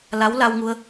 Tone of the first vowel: rising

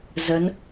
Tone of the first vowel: rising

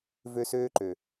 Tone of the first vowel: high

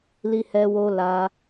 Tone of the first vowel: high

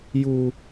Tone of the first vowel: high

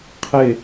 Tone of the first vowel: falling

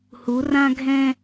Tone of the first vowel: rising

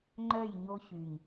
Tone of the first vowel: falling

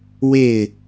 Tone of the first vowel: falling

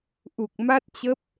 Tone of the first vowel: low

